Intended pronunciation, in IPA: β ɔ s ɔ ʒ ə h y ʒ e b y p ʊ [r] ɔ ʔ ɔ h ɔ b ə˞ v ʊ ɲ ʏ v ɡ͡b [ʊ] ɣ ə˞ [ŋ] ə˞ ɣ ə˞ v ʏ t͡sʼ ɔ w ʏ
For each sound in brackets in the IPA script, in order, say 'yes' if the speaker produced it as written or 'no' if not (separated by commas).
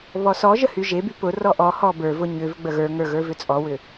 yes, no, yes